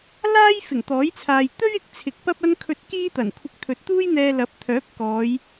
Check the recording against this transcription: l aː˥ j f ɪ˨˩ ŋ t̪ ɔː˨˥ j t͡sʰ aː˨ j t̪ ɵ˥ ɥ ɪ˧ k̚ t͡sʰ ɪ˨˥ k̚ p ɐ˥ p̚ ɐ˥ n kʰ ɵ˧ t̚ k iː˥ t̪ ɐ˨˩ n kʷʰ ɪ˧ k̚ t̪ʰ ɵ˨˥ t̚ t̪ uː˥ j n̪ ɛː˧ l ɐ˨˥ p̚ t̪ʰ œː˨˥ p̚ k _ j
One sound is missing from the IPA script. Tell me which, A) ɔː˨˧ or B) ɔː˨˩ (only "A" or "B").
A